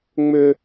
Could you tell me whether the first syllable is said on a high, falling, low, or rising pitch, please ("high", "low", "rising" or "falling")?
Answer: high